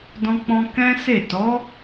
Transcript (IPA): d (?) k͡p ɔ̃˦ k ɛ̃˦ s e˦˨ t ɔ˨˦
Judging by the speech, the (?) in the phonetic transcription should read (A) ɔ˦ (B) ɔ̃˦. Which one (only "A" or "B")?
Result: B